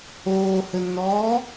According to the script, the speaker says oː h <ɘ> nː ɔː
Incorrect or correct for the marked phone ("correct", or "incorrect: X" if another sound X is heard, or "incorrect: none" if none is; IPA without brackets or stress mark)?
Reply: correct